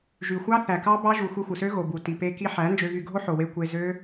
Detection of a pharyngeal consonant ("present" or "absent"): present